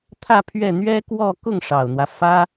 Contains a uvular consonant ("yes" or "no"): no